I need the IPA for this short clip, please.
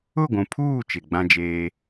ʊ˦˨ ɡʷ ũ˨ pʰ uː˦˨ t͡ʃ ɪ˨ ɡ͡b ã˦ d͡ʒ eː˦

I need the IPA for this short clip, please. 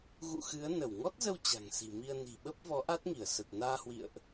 ɣ ṵ˧˨ x ɨ˨˦ ə̯ n ə˧˩ w ŋ ɔ˦˥ t̚ z ə˧ w t͡ɕ a̤˨˩ ŋ s i̤˨˩ m i˧ ə̯ n i̤˨˩ ɓ ə˦˥ p̚ v ɔ˨˦ ʔ a˦˥ t̚ ŋ i˧˩ ə̯ s ə˨˩ t̚ n aː˧ h w ḭ˧˨ ə̯ ʔ

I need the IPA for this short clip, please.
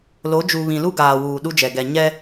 l o˨˦ d͡ʒ u˨ β ĩ˨ l u˦ ɡ aː˨ w uː˨ ɗ u˦ d͡ʒ ɛ˨ ɡ ɛ˨ ɲ ɛ˦

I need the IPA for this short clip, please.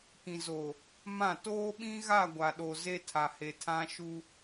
k ĩ˨ z o˨ | m ã˦˨ t oː˦ ɓ ĩ˦ ɣ a˦˨ ɡʷ a˨ ɗ o˨ z e˦ tʰ a˨ h e˨ tʰ ã˦ ʃ u˦

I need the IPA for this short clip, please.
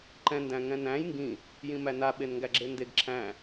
ǃ ɛ̃ n d æ̃ ŋ ɛ̃ n æ̃ j ŋ ɡ ĩ | j ĩ m æ n a ɓ e n ŋ ɡ æ ɡ͡ǁ e n d e ɡ ǁʰ æ̃

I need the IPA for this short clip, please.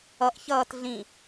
ʌ ʔ ç ʌː t ɮ ĩ

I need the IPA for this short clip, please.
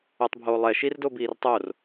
o tˤ bʱ oː lˠ ɛ ʃ i r d o b iː r tˤ o r

